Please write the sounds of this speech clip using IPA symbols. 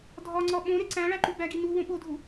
dʱ ɒ ŋ͡ǀ ɒ ɓ õ ɾ e ǀ æ̃ ɭ æ ǃ u b æ ɡ i n u w õ ɓ o dʱ u

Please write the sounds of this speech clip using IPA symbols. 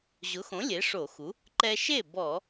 ʑ ʊ˩˥ x õ˩˥ lʲ e˩˥ ʂ o˧˩˧ x u˩˥ | ǃ ɛ˧ ʃ e˥˩ b ɔ˧˩˧

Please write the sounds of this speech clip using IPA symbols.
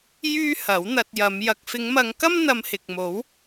j yː˥ h ɐ˨˥ w n̪ ɐ˧ t̚ j ɐ˨˧ m j ɐ˨ k̚ f ɪ˨˧ ŋ m ɐ˨˧ ŋ k ɐ˥ m n̪ ɐ˧ m h ɪ˨ k̚ m o˨˥ w

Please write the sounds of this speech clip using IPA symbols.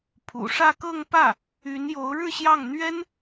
pʰ ṵ˨˩ ʂ ä˥˧ k ɤ˥˧ ŋ p ä˥˩ | y˧˥ n j o˧˥ ʊ̯ ɻ ɻ̩˥˧ ɕ j ɑ˥˩ ŋ n̪ ɥ ɛ˥ n

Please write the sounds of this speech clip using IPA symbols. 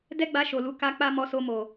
d ɛ˦ ɡ͡b a˧ ʃ o˨ l u˨˦ k a˧ k͡p a˧ m ɔ˧ s o˧ m o˨

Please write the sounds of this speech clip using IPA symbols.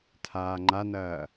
tʰ aː ŋ͡ǃ a n ɐː

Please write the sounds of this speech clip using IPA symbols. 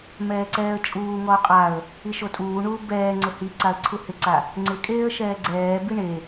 m ɛː ǀ ɛː ə̯ t͡ʃʼ uː ŋ ɔ ʊ̯ qʼ a ə̯ | i ʃ o tʼ uː ɳ uː b ɛː ŋ͡ǀ ʊ h i ǀ a ə̯ ǀʰ u h ɪ ǀ a | ŋ͡ǀ ɪ kʼ eː ə̯ ʃ ɛː ɡ͡ǀ ɛː b i ɳ e

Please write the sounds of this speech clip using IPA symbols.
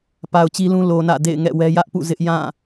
p a˨ ʊ̯ t͡ɕ i˦ l ũ˦ l o˨ n ä̰˦˨ d ḛ˦˨ ɪ̯ ŋ ɛ̰˦˨ w ɛ˦ j ä˦ ʔ p ṵ˦˨ z ɪ˦ ʔ j ã˦˨

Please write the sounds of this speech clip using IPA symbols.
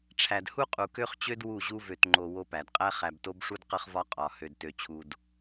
ʈ͡ʂʰ æ˨ d h u˦ qʼ u˨ k ø˦ χ t͡ɕ ø˦ d w u˦˨ ʑ u˦ v ø˨ t ŋ͡ǃ o˨ w o˦ p æ˨ d qʼ æ˦ χ æ˨ b t o˦ b ʂ u˦ d q ə˦ χ v ɒ˦ qʼ ɒ˨ h ø˨ d t ø˨ t͡ɕʰ u˨ d

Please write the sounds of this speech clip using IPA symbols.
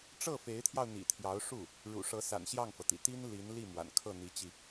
ʈ͡ʂ ɤ˥˩ f e˧˥ ɪ̯ t̪ʰ j ɑ˧ ʊ̯ n̪ ḭ˨˩ t̪ʰ j ɑ˧˥ ʊ̯ ʂ u˥˩ | ɻ ṵ˨˩ ʂ ɤ˧˥ s a̰˨˩ n ɕ j ɑ˥˩ ŋ f ɤ˩ t̪ ḭ˨˩ t̪ i˥ n l i˧˥ n l i˥˩ m w a̰˨˩ n kʰ ɤ˥˩ n̪ i˧˥ t͡ɕ i˧

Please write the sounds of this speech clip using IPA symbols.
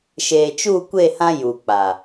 ʃ eː˨ t͡ʃ u˦˨ kʷ e˦˨ h ã˦ j u˨ k͡p a˨

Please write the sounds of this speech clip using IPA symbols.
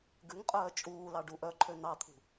ɡ ʉ ŋ qʼ œː t͡ʃʼ uː l ɑ ɖ u ʔ œ ǃʰ ø n ɑ t̪ʰ ṳ

